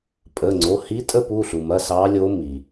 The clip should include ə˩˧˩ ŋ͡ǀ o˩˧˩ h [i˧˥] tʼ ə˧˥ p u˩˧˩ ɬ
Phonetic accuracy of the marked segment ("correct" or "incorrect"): correct